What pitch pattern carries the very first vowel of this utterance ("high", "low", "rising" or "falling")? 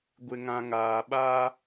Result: low